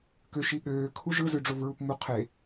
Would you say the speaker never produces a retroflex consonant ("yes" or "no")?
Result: no